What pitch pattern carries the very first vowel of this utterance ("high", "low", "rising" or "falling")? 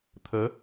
rising